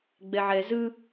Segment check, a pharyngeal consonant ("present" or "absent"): present